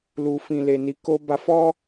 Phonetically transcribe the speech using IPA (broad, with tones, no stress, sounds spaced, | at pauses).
l u˨ f ĩ˨ l e˨ n i˨˦ k o˧ b a˧ f ɔ˦